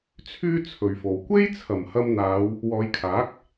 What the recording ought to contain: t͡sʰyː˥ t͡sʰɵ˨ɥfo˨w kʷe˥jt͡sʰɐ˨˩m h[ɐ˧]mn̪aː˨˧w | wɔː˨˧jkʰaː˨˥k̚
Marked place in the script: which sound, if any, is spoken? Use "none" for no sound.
ɐ˧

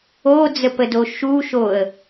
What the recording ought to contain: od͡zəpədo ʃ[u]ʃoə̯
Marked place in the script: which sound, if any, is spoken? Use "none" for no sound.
u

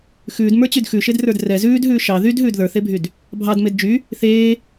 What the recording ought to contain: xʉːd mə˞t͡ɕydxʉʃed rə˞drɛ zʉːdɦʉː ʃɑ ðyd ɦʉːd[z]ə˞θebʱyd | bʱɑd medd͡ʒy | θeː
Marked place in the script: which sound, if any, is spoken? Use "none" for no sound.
ð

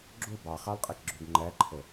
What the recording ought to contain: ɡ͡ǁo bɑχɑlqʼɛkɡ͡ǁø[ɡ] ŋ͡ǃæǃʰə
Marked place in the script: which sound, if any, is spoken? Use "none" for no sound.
ɡ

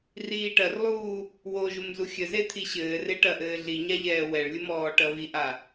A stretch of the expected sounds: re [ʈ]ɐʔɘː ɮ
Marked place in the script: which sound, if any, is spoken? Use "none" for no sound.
ʈ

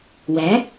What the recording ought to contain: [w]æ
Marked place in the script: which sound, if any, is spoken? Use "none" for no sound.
w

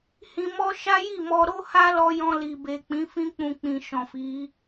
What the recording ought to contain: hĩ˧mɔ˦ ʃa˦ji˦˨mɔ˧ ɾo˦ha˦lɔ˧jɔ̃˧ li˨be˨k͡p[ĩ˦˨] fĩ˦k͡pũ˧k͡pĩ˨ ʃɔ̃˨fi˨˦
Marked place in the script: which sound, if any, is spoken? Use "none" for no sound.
ĩ˨˦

